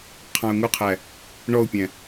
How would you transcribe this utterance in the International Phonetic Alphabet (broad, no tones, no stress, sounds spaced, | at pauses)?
qʰ ɑ̃ ʊ̯ ŋ u qʰ æ | ɳ ɔ ʊ̯ pʲ æ̃